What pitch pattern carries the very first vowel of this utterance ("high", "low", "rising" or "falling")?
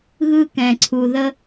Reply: high